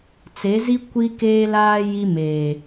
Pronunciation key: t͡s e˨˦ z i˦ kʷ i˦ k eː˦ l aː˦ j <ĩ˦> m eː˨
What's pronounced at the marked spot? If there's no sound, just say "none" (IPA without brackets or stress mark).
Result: i˦